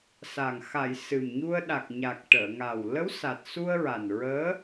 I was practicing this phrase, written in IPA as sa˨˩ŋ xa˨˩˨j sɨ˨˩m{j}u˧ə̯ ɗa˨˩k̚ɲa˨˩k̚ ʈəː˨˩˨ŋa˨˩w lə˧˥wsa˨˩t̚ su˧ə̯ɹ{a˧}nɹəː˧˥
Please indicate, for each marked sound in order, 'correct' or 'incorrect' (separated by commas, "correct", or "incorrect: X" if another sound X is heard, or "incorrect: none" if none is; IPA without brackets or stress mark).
incorrect: ɲ, incorrect: a˨˩